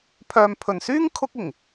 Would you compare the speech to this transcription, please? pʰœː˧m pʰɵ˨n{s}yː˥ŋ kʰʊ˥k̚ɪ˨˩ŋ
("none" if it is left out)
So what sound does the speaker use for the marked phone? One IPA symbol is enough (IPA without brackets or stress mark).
s